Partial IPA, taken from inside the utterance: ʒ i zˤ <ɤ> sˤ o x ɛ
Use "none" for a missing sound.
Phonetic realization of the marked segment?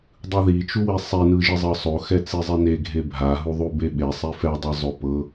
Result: ɤ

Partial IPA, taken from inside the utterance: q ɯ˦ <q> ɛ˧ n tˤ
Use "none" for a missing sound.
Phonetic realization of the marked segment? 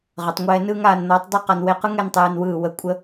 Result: ŋ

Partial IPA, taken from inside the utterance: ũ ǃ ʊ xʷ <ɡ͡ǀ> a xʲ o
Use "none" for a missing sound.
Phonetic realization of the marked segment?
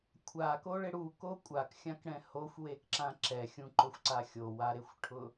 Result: ǀ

